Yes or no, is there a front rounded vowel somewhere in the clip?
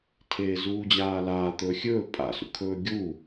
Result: no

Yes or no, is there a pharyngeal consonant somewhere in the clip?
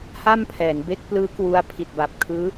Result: no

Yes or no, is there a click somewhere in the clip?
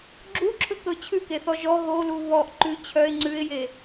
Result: yes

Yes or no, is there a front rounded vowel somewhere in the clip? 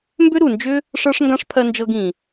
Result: yes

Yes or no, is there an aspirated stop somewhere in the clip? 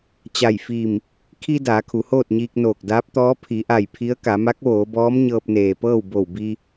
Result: yes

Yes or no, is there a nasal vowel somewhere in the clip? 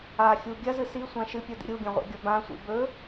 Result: yes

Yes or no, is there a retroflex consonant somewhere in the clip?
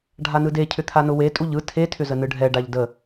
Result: yes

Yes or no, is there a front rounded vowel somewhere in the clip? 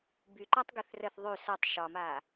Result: yes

